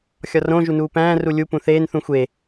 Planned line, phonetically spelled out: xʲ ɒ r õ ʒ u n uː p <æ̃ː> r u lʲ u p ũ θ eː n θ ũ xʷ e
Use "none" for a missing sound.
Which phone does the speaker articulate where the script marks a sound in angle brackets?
æ̃ː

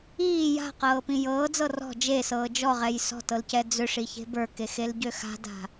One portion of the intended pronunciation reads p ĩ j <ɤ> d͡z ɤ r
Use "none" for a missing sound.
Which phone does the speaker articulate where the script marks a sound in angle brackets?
ɤː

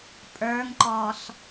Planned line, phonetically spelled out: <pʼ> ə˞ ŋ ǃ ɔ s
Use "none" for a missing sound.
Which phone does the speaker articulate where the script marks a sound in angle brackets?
pʼ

